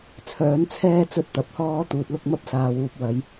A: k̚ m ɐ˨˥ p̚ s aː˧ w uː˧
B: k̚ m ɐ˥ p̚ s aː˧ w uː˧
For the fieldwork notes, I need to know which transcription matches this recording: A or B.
B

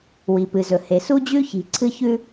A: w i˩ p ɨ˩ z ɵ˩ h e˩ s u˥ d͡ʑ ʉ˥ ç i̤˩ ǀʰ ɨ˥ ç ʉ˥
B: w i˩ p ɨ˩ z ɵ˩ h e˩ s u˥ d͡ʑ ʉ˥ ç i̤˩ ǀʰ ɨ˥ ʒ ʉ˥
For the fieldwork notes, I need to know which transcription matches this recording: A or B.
A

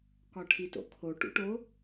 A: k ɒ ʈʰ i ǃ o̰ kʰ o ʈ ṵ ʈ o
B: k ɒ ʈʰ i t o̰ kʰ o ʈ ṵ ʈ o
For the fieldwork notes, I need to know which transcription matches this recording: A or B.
B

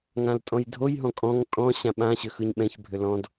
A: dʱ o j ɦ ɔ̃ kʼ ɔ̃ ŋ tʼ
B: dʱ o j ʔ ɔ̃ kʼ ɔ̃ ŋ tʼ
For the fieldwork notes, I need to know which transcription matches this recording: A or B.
A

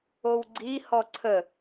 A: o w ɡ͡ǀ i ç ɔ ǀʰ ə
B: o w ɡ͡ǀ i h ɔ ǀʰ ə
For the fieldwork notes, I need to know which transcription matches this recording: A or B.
B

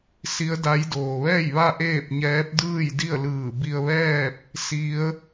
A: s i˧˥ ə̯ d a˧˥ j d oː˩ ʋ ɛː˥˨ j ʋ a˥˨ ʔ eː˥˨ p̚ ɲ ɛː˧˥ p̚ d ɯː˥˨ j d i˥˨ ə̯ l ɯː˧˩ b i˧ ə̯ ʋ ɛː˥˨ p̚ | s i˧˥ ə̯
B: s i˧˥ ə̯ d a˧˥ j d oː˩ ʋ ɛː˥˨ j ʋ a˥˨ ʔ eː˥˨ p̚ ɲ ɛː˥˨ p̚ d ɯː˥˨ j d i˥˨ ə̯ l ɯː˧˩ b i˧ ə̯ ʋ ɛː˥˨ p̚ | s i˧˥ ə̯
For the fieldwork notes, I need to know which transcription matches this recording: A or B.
A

